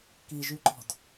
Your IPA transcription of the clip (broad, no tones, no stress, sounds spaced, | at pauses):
k i ʒ y ǃ ɔ̤ d